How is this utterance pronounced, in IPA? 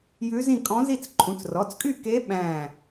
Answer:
j ʉ˧˥ z ĩ˥˨ kʼ ɔ̃˧˥ z i˥˨ t͡s ǃʰ ũ˩˧˩ t͡s r ɔ˩˧˩ t͡s kʼ y˥˨ k e˧˥ ɓ æ̃˧˩

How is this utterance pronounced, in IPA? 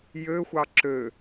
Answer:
j ø xʷ ɑ ǁ ø

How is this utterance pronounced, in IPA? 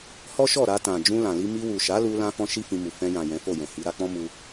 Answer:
h ɔ˦ ʃ ɔ˦˨ ɾ a˧ t ã˨ d͡ʒ ũ˧ l ã˨ l i˧ m i˧ w u˨ ʃ a˨˦ l u˧ l ã˦ f ɔ̃˦ ʃ i˦ f ĩ˧ m u˨ f ɛ̃˧ j ã˨ j ɛ̃˨˦ f o˦˨ j ɛ̃˨ h i˨˦ ɾ a˧ k͡p ɔ̃˦ m u˧

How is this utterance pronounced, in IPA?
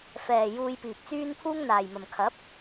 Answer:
f ɛː˨ j uː˧ j p iː˨ p̚ t͡s yː˥ n pʰ uː˥ ŋ n̪ aː˨ j m ɐ˨ m kʰ ɐ˨˥ p̚

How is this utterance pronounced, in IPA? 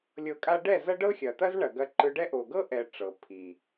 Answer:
lʲ ɤ˧ kʼ a˦ ɖ ɛ˦˨ z ɐ˦ ɖ ɤ˦ xʲ ɐ˨ t̪ ɐ˦ z ɳ ɐ˨ ɡ ɐ˧ ǃ ɯ˧ ɖ ɛ˦ ʔ o˨ ɡ ɤ˦ ʔ ɛ˨ ʈ͡ʂ ɤ˨ pʰ i˨

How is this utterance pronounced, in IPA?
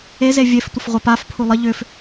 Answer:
e z e vʲ e f tʷ ə f ʁʷ ə p a f pʰ u lˠ ə ʎ ʏ f

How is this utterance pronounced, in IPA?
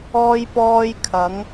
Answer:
ɔː˧ j p ɔː˧ j kʰ ɐ˨˧ ŋ

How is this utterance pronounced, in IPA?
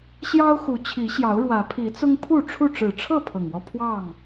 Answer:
ɕ j ɑ˦ ʊ̯ x u˨˦ t͡ɕʰ i˨˦ ɕ j ɑ˨˦ ʊ̯ ɻ w ä˨˦ pʰ i˨˦ t͡s ʊ˦ ŋ pʰ u˥˨ ʈ͡ʂʰ u˥˨ ʈ͡ʂ ɻ̩˨˩ ʈ͡ʂʰ ɤ˥˨ pʰ ɤ˨˩ ŋ w ɔ˦ pʰ w ɑ˥˨ ŋ

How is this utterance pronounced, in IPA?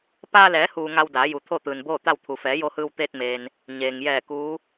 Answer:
p aː˧ l ɛː˩˧ h uː˩ ŋ a˧ w d aː˩˧ j u˩ t̪ʰ o˥˨ t̪ ɯː˩ n b oː˥˨ t̪ a˥˨ w t̪ʰ u˩ f ɛː˩˧ j o˧ h ɯː˧ w t̪ eː˧ t̚ m eː˩ n | ɲ eː˩ ŋ j ɛː˧˩ k uː˧˥

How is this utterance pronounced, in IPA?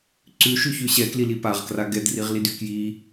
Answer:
ǀ ʉ ʃ ʉ ç ʉ ɕ ɛ k l i l i p a ʁ k r a ɡ ɛ d r i ʁ l i d y k j i

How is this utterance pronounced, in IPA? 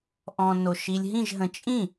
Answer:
ʔ ɔ̃ː n o ʃ i lʲ ɦ ĩ ʒ ɦ ə̃ t͡ʃʼ ĩ

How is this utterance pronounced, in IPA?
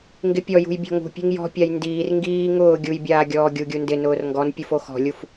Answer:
ŋ ɡ ɪ pʲ ɔ j ṳ j bʲ ɔ̤ ŋ ṳ pʲ e̤ ŋ j ɔ̤ pʲ a j n d iː r ŋ ɡ iː ŋ ʊː ɡʲ u j bʲ aː ɡʲ ɔː ɡʲ u ɡʲ u n d ɪ n ʊː r ŋ ɡ ɔ n pʲ u f o x ɔ̤ lʲ u f

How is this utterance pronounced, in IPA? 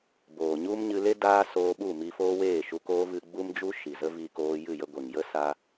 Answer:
b oː˨ ɲ u˦ m ɲ ɨ˧ l e˦ d aː˦ s oː˧ ɓ u˦˨ m i˧ f oː˦ w eː˦˨ ʃ u˧ k oː˦ v ɨ˧ ɡ͡b u˦ m d͡ʒ u˦ ʃ i˨ z ə˦ v i˧ k oː˧ j ɨ˦˨ j ə˧ ɡʷ e˨ ŋ j ə˦ s a˧

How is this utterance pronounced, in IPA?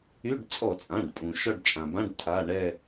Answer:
y˧˥˧ ɖ t͡sʼ ɔ˧˩˧ t͡sʼ ã˩˧˩ ɖ pʼ ũ˩ ʃ ɔ˦˨ ɖ t͡ʃʼ ã˩ b ã˧˥˧ ɖ tʰ a˩˧˩ ɳ ɛ˦˨

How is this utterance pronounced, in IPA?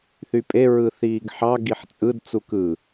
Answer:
θ y pʼ e ɹ ɯ θ iː ɡ ħ ɑ ɡ i ħ t͡sʼ ɯ d t͡s u k ɯ

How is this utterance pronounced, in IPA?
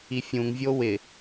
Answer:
i fʲ ũ ŋ vʲ o w ɪ

